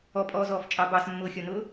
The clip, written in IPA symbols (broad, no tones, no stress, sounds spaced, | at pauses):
ɔ pʼ ɔː z ɔː f t͡ʃʼ ɑ b ɑ s mː ʊː xʲ ɔ n ʊː